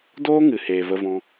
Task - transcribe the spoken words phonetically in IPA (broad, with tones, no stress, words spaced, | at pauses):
doː˦ ŋɨ˨heː˨ və˧vɔ̃˧